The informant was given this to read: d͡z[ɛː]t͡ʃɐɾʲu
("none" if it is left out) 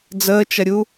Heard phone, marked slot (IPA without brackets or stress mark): əː